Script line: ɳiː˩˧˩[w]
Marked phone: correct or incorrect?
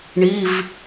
incorrect